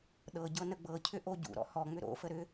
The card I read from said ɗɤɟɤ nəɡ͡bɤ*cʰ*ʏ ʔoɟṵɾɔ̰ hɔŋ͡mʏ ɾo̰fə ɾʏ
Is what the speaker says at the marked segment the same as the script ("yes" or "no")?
yes